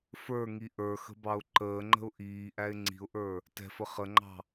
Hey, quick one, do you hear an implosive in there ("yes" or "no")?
no